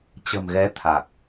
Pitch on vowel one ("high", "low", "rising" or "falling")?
low